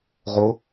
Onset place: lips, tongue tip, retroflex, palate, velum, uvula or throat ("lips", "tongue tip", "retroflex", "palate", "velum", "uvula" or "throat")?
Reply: uvula